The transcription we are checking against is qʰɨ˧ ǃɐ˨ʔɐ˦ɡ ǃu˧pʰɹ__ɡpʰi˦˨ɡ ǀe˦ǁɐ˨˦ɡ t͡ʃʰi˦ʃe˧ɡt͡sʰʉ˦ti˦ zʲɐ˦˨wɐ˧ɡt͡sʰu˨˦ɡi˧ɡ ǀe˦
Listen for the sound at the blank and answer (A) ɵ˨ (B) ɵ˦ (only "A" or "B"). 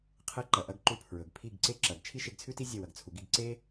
A